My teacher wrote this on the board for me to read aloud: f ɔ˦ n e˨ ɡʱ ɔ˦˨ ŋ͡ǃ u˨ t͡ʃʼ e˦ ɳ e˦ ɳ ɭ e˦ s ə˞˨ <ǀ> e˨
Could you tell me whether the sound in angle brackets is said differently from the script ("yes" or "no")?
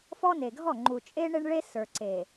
no